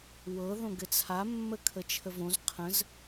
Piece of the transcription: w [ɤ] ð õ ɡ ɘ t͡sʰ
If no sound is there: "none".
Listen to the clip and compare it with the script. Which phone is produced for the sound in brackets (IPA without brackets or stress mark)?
ɤ